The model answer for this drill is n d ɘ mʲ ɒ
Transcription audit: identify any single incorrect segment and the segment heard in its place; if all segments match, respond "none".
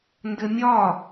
none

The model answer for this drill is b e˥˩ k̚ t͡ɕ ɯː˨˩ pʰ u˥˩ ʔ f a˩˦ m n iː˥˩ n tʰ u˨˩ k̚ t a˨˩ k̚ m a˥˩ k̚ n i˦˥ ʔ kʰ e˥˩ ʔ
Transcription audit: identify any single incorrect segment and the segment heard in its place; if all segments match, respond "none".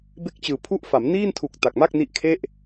none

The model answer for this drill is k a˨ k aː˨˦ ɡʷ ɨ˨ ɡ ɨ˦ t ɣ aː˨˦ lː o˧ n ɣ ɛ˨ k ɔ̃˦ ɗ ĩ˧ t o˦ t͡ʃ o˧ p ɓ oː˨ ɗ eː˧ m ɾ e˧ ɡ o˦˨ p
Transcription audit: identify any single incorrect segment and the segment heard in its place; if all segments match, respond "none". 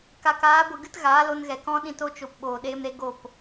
lː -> l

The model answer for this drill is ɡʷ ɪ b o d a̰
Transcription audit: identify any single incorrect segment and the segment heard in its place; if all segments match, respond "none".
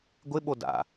b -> ɓ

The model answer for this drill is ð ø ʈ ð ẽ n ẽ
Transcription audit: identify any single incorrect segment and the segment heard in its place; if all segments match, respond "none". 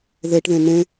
ø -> e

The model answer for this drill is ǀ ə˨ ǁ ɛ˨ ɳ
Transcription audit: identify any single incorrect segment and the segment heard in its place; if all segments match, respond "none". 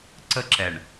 ə˨ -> ə˦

